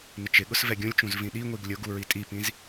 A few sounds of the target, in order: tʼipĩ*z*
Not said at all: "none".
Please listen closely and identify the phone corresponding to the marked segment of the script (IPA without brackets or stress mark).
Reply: z